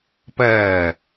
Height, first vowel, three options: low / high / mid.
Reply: low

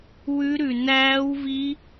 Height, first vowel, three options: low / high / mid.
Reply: high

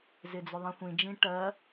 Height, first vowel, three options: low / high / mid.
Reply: high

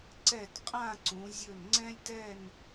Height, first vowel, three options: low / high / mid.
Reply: mid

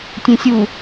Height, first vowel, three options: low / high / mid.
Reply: mid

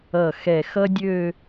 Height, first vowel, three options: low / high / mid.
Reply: mid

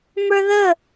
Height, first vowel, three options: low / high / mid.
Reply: mid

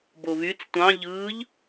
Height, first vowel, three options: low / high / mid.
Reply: mid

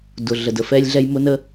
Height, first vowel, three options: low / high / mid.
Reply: high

